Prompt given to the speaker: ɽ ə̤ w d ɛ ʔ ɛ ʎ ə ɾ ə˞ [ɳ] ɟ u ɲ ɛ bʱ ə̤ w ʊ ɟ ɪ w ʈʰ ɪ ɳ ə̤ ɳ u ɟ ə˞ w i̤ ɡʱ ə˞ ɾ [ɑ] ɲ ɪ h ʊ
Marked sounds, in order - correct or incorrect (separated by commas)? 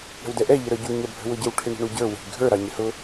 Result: incorrect, correct